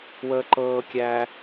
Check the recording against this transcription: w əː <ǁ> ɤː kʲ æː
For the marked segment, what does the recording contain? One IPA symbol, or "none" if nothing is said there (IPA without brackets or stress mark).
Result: ǃ